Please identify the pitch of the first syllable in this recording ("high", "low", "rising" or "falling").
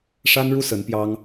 high